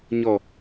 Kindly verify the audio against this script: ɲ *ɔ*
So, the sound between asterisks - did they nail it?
yes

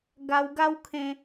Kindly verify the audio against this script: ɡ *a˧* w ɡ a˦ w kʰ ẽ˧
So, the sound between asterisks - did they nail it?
yes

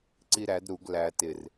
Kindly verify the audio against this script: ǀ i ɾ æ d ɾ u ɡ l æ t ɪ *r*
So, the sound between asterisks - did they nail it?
yes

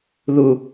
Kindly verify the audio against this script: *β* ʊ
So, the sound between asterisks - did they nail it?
no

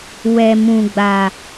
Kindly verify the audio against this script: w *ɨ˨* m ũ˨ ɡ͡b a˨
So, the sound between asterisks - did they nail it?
no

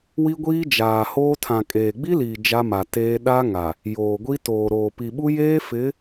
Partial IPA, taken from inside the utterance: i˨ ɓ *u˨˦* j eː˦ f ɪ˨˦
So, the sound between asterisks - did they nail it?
no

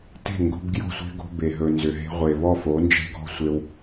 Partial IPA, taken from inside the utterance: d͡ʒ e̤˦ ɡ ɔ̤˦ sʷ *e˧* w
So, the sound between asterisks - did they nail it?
yes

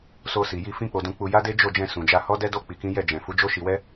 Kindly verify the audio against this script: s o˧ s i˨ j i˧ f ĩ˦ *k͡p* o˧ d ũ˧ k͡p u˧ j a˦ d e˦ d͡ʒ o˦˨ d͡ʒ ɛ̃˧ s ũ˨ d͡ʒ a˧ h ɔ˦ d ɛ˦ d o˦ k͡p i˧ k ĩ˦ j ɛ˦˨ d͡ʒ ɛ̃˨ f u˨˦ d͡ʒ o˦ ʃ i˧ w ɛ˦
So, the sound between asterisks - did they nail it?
yes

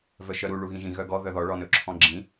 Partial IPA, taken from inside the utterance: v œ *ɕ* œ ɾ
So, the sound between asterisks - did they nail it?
no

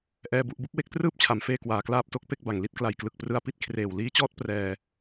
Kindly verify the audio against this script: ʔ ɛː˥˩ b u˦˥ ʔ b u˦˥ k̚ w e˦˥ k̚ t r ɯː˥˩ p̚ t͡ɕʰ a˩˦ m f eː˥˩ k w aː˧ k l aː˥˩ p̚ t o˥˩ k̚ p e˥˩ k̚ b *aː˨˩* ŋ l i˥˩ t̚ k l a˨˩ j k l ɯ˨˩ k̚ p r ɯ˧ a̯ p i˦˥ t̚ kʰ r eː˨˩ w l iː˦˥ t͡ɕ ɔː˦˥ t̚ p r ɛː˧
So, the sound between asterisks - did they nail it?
no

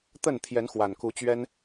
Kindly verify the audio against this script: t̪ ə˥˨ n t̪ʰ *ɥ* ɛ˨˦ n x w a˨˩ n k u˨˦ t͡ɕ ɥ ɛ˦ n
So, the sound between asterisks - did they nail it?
no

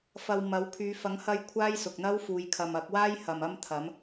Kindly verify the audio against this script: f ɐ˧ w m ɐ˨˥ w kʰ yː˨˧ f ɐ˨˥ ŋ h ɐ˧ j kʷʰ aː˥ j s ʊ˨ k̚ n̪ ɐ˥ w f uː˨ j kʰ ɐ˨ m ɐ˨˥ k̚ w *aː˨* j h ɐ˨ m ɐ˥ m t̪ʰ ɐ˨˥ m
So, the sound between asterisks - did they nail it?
no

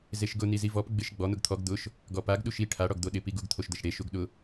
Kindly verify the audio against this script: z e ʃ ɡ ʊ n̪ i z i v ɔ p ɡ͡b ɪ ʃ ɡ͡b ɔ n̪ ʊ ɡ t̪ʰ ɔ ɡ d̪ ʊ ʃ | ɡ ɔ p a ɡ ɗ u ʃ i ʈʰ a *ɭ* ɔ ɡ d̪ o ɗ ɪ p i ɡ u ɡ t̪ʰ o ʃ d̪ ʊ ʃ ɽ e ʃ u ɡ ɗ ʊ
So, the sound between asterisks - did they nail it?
no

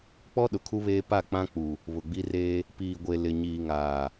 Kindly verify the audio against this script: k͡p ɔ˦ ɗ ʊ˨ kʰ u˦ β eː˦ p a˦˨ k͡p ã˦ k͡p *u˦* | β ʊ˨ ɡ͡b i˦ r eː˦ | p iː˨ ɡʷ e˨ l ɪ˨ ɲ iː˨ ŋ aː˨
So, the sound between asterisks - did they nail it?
no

